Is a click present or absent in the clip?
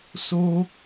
absent